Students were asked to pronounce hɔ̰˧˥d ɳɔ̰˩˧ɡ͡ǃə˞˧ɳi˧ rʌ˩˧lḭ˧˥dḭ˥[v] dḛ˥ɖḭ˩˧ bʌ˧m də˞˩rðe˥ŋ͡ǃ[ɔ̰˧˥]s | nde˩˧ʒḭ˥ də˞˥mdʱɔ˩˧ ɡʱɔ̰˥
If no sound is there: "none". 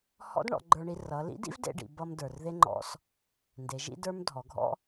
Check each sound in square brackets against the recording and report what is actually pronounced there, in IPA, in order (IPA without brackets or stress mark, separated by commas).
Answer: v, ɔ̰˧˥